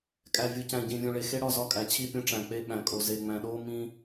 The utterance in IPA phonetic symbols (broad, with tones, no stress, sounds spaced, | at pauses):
kʼ æ˨ vʲ u˨ c æ̃˨ ɟ ĩ˨ vʲ ũ˨ ɭ e˨ x e˦ ɽ ɒ˦˨ z ɒ˦ kʼ æ˨ t͡ɕʰ i˦˨ pʲ ũ˦ ʈ͡ʂ æ̃˨ k͡p e˦ ɓ æ̃˨ kʼ o˨ z e˨ ŋ͡m æ̃˨ ɗ oː˦ m ĩ˦